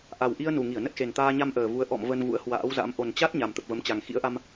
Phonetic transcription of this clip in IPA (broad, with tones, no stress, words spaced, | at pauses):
ʔa˨˩w ʔi˧ə̯nu˨˩ŋi˧˩ə̯ nə˦˥t̚xe˨˩nt̪aː˧ ɲa˧m ʔəː˨˩vu˨˦ə̯ ʔɔ̰˧˨m və˧nvṵ˧˥ə̯hwa̰ː˧˥wza̰˧˥m ʔo˨˩nt͡ɕa˦˥t̚ ɲa˨˩mt̪ə˨˩p̚və˨˦mt͡ɕa˨˩ŋ xḭ˧˥ə̯ʔa˧m